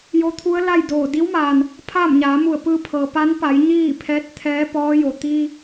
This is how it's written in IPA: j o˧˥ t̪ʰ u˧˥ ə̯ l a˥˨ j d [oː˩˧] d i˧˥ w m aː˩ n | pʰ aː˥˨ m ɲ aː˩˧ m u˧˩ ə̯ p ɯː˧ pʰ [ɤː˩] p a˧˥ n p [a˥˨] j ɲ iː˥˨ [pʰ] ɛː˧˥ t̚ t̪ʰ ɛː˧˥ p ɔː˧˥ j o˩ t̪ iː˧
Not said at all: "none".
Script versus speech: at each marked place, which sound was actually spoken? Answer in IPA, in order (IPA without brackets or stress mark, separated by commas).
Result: oː˧˩, ɤː˩, a˩˧, pʰ